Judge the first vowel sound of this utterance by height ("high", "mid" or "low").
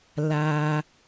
low